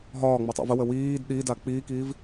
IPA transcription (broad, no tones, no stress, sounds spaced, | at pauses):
ɦ ɒː ŋ͡m o tˤ ḭ v ə w ə w iː d ɗ i d a k͡p iː k iː v